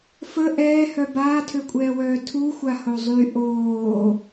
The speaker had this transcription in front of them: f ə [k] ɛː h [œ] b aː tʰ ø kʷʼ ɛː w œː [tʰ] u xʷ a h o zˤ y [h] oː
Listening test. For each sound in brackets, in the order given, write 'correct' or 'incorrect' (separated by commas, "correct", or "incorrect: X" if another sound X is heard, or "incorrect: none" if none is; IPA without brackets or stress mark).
incorrect: ʔ, correct, correct, incorrect: ʔ